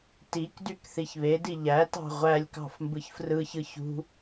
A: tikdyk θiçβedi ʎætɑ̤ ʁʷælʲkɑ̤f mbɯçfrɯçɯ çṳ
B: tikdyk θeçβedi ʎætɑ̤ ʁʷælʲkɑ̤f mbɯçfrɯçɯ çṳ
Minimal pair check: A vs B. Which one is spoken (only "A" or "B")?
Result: A